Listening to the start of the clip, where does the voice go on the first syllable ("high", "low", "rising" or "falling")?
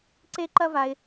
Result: high